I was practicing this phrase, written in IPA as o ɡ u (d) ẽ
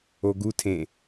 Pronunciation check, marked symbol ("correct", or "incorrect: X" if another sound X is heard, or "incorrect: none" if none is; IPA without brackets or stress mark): incorrect: tʰ